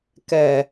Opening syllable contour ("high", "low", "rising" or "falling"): low